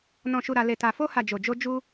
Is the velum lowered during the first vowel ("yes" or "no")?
yes